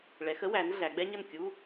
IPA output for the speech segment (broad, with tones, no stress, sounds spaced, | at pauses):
ɭ ɛ˩˧ x ə˥ w æ˩˧ n ɮ æ˩˧ ɡ͡b ɛ˥ ɲ ə˥˩ n kʲ u˧˥˧